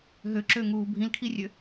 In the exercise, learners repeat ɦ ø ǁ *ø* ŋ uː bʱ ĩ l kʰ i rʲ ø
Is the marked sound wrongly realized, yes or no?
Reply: no